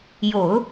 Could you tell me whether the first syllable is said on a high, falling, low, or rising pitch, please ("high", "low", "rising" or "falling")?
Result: low